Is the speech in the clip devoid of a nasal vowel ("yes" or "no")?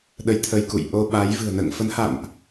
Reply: yes